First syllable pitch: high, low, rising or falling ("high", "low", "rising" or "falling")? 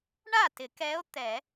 falling